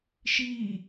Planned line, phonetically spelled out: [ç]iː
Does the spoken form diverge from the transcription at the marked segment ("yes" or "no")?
yes